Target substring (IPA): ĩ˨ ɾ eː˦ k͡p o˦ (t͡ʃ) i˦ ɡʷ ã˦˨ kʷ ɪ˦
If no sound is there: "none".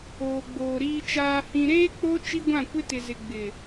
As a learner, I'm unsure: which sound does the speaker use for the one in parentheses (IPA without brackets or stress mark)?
t͡ʃ